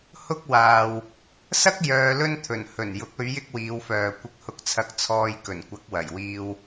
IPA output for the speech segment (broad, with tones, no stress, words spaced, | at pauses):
hʊ˥k̚ waː˨w | sɐ˥k̚ jœː˧lɵ˥nt̪ʰɵ˨˩n hɵ˨˩n jʊ˨˥k̚ɵ˨˧ɥ jɪ˥k̚wiː˨˧wfœː˨ kʷɪ˧k̚hʊ˧k̚t͡sʰɐ˧k̚ t͡sʰɔː˧jkɵ˨˩n kʷɐ˨˥k̚wɐ˨˩jwiː˧w